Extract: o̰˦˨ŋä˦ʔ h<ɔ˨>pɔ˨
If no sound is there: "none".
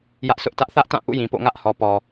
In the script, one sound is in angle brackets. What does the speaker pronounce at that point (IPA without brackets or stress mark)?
ɔ˨